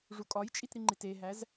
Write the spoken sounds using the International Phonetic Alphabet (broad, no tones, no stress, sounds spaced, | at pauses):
ʐ u kʼ ɒ j t͡ʃʼ i t ɾ i ŋ͡ǃ i t e ɦ æ z